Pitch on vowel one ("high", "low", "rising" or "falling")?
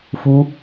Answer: high